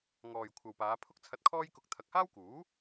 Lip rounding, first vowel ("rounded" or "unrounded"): rounded